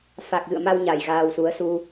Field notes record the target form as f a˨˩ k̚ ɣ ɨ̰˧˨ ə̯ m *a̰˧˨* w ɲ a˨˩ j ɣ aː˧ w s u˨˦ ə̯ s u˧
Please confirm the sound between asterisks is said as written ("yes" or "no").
no